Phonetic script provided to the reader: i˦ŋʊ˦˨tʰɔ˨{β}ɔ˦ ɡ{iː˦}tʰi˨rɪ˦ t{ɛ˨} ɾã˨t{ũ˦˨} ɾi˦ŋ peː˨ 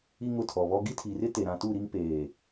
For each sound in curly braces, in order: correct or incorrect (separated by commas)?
correct, incorrect, incorrect, incorrect